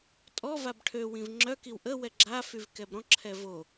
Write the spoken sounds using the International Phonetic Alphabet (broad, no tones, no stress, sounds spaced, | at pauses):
tʼ ɔ v a b ʈʰ ø w ĩ v ŋ͡ǁ œ k i w ʔ ə w ɛ ɡ͡ǁ a f y v k ɛ b ɾ ɔ̃ ǁʰ ɛ v o